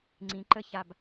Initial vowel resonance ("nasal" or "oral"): nasal